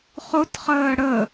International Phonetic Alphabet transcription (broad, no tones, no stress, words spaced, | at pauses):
χʊtχəː ɽə